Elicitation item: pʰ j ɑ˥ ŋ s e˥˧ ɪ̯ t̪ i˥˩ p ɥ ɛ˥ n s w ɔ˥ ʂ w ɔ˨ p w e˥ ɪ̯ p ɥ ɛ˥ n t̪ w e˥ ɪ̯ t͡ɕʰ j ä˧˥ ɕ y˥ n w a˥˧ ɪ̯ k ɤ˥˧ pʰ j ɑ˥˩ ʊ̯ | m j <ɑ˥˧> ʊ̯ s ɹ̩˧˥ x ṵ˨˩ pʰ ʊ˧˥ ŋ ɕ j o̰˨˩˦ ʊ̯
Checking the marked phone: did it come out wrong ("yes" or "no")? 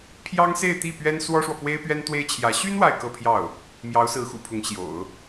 yes